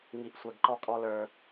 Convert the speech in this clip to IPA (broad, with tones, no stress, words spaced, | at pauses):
ŋi˨ʔsʷɛ˨ɡ ǃɔ˦kʼɔ˦ lə˞˦